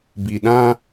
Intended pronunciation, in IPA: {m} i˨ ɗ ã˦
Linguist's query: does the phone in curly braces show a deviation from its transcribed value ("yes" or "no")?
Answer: yes